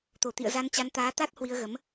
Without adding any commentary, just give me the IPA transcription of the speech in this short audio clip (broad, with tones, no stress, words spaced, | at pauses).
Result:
t̪o˧˩t̪ḭ˧˨ə̯ za˧nt͡ɕa˨˦n t̪aː˨˦t̪a˦˥t̚ hwi˧ə̯ɣə˨˦m